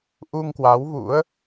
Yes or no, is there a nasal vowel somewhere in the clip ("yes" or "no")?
no